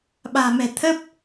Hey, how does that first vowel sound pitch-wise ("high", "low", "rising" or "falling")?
low